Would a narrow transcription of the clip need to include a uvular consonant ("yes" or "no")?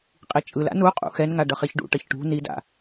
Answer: yes